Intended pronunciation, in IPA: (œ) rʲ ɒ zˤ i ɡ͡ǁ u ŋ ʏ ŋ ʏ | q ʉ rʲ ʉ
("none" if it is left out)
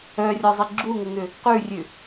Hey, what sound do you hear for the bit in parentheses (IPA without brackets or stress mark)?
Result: œ